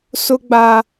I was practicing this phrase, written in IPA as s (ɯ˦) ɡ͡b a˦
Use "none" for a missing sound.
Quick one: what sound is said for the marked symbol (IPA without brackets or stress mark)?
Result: ʊ˦